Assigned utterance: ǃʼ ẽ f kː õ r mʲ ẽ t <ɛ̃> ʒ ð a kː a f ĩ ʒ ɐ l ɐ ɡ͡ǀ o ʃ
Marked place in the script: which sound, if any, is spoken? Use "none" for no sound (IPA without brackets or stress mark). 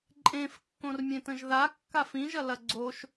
ə̃